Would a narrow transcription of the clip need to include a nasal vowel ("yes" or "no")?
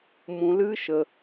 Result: yes